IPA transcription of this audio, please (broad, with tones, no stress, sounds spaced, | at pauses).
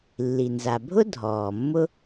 lː i˩ n z a˩ bʱ ʊ˥ dʱ ɔː˩ mː ʊ˥